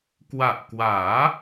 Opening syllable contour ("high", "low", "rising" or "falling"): low